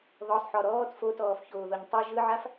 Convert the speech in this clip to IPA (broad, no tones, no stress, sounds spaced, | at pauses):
ð ɔ sˤ ħ ɔ ɾ ɔː t f o t ɔː f ç oː ð o ɲ tˤ ʉ ʒ ɯ ʕ a f